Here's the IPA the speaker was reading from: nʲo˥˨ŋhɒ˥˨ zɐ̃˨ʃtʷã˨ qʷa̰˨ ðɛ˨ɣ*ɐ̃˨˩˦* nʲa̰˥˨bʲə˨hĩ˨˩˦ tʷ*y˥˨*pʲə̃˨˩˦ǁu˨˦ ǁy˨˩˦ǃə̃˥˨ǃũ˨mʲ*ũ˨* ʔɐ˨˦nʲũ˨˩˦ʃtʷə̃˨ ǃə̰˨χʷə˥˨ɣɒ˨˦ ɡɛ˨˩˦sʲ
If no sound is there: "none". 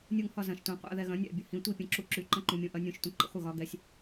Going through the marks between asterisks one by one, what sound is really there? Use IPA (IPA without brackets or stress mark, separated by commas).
ɐ̃˨˩˦, i˥˨, ũ˨